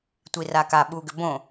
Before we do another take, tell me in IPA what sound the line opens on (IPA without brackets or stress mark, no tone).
tʷ